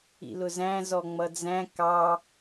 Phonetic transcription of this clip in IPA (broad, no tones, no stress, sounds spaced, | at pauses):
ḭ l ʊ z æ̃ z ɔ ŋ͡m ʌ d͡z æ̃ k ɑ